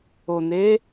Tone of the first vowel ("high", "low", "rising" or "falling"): low